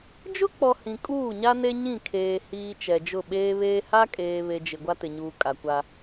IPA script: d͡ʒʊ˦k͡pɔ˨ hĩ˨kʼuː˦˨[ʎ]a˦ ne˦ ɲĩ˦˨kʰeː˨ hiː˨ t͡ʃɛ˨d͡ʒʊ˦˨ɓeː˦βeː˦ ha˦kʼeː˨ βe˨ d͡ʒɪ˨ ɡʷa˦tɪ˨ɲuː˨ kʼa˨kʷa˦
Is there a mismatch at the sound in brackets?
yes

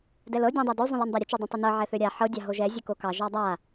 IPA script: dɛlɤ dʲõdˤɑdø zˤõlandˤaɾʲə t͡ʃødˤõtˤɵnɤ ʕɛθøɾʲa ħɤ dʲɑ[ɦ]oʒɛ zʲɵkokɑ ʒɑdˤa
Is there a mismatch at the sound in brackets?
no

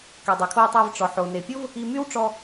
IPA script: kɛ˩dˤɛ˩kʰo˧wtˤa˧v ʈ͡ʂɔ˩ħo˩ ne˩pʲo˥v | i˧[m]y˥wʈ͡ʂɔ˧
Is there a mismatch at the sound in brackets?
no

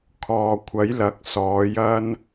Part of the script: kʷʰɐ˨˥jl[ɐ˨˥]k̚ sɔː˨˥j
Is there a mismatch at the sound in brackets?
no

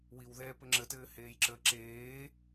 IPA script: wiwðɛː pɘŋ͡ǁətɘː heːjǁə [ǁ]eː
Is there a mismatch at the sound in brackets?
no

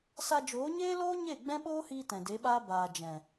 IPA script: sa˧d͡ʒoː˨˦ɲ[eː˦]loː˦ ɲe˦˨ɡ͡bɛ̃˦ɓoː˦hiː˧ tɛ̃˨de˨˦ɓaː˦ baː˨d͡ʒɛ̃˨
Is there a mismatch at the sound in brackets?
no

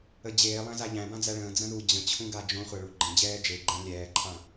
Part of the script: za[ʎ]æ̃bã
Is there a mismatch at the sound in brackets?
no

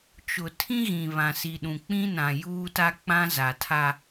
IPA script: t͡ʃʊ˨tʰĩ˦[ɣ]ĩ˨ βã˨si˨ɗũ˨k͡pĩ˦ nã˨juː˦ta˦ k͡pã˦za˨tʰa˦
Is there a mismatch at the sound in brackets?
no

